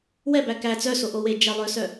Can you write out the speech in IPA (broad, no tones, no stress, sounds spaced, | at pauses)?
w ɛ b æ k æ t͡s œ s o ʔ o w e d͡ʒ ɛ lˠ œ s œ